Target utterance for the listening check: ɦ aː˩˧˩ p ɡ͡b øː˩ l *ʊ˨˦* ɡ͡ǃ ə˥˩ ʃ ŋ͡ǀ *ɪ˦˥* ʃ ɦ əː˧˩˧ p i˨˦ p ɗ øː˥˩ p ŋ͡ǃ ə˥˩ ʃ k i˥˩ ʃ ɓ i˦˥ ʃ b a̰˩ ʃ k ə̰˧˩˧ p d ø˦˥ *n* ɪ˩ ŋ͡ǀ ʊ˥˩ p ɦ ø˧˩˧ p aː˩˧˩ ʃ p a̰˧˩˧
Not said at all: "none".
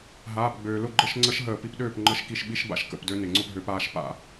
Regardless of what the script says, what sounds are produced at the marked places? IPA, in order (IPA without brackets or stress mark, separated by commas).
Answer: ʊ˥˩, ə˦˥, n